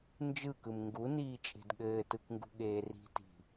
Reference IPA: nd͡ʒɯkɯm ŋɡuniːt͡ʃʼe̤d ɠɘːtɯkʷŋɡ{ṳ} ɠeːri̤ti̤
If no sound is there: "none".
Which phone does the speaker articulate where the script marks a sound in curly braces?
ṳ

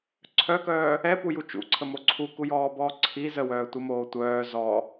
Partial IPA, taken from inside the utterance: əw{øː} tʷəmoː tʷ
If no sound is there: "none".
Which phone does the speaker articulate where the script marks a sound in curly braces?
œː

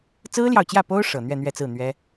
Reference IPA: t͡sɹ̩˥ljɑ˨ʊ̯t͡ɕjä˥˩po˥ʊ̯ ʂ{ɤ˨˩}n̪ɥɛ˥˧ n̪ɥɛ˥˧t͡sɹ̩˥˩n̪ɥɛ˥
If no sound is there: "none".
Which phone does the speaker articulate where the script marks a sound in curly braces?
ɤ˨˩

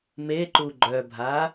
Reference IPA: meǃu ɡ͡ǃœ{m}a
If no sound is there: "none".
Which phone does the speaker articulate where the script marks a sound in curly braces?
bʱ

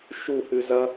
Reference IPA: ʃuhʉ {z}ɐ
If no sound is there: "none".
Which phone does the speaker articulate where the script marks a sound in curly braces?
z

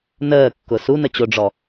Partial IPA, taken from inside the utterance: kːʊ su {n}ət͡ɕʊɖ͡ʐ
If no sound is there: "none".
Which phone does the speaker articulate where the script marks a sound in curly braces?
n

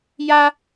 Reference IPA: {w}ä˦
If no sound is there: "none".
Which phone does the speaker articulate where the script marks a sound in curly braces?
j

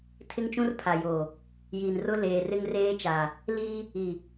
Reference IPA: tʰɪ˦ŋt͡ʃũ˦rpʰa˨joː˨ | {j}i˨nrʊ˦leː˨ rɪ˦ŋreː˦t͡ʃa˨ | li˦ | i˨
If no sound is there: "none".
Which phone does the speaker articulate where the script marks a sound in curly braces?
j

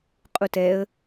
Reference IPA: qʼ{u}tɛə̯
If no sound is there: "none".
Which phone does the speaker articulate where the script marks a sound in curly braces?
u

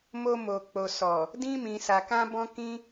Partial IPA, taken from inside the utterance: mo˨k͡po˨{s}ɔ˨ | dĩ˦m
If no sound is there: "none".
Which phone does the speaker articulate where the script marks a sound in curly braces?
s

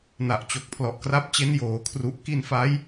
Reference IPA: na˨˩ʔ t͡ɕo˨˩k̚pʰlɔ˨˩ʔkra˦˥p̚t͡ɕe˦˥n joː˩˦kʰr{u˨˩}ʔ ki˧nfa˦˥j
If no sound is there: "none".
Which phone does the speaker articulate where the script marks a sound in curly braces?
u˨˩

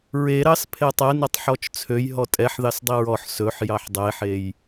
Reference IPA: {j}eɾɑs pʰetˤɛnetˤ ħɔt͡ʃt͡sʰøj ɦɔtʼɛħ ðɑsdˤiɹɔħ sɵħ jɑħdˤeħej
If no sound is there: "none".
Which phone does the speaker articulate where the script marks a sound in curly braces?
ɹ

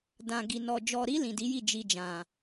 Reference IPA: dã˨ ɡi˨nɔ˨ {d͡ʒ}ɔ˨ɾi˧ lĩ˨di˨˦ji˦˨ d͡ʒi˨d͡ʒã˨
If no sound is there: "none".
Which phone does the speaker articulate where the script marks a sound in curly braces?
d͡ʒ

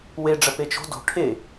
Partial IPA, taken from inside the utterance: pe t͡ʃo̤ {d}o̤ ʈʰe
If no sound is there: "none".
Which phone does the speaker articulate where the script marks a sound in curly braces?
d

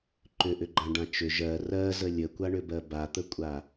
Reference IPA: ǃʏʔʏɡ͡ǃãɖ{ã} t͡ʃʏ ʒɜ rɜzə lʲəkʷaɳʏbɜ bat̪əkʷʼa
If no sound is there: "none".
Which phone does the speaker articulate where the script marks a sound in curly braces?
ã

